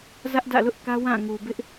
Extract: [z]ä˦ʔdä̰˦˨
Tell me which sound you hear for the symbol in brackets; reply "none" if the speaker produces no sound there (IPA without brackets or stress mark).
z